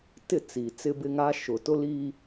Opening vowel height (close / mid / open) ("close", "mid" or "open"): close